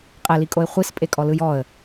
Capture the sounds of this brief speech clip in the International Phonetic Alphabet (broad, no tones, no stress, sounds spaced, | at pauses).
qʼ ɛ l i kʼ o ɪ̯ χʷ i s pʼ e kʼ ɔ l ɯ j ɔ ə̯